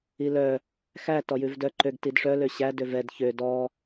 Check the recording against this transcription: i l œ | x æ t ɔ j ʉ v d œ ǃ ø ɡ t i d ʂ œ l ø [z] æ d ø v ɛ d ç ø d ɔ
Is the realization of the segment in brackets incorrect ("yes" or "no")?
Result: yes